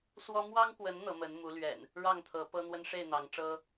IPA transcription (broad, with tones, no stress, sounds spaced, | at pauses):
s w ɔ˦ m w ɑ˦ ŋ k w ə˨˦ n n̪ ɤ˨˦ m ə˨˦ n m u˨˦ l ɥ ɛ̰˨˩ n | ɻ ɑ˥˨ ŋ t̪ʰ ɤ˨˦ p ɤ˦ n̪ w ə˦ n ʂ e˥˨ ɪ̯ n̪ ɑ˨˦ ŋ ʈ͡ʂ ɤ˦